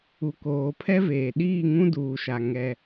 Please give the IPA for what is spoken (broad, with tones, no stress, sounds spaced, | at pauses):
u˨ k oː˨ pʰ ɛ˦ v eː˨ ɗ iː˦˨ ŋ ũ˦ d uː˨ ʃ a˨ ŋ ɛ˦